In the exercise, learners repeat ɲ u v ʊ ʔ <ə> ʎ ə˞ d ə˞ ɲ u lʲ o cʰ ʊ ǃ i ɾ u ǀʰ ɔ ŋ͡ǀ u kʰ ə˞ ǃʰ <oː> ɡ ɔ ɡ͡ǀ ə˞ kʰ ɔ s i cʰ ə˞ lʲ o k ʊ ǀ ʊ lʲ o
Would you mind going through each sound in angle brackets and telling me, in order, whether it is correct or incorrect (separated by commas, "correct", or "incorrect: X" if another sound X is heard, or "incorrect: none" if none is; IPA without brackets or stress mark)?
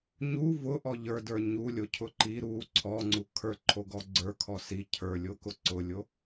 incorrect: ɔ, incorrect: o